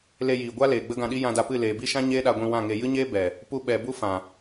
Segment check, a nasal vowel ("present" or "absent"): present